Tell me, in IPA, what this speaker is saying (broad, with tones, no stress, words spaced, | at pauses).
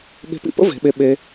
ɠe̤˧pḭ˧pə̰˦ ve̤˨˦ɓe˧ ɓe˧